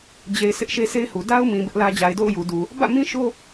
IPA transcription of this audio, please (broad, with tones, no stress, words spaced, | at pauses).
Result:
d͡ʑe˨ɪ̯ sɪ˦ʔʃe˦se˦ɪ̯hu˨ da˦ʊ̯mĩ˨ bɪ˦ʔlä˦ d͡ʑa˨ɪ̯do̰˦˨ʊ̯ ju˨du˨ | bä̰˦˨mĩ˦ ʃo˦